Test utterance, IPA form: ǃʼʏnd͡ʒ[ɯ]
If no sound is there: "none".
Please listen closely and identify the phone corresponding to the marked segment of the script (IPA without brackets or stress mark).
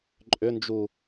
u